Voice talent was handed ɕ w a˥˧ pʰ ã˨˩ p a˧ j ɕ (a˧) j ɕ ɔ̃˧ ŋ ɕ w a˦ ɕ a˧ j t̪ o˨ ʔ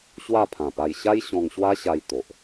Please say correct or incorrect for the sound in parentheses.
incorrect